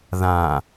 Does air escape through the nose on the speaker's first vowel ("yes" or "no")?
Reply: yes